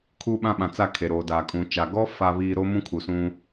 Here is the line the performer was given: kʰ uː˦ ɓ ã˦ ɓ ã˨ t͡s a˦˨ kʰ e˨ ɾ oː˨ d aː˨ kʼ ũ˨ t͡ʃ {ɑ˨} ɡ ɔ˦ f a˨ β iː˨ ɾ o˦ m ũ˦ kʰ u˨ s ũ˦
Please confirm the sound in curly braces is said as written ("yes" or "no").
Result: no